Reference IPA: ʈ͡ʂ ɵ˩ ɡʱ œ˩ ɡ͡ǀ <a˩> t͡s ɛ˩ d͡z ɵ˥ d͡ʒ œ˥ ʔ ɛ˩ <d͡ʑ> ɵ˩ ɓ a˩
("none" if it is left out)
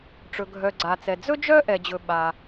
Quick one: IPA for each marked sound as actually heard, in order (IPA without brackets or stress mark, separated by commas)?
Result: a˩, d͡ʑ